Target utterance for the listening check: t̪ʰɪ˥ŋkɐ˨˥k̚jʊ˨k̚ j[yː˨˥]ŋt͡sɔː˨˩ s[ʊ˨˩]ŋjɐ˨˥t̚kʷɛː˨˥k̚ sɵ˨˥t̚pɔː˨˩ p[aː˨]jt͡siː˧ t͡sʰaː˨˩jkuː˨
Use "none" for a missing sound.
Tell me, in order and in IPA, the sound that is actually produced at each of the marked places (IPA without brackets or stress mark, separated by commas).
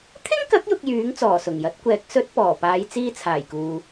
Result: yː˨˥, ʊ˨˩, aː˨˧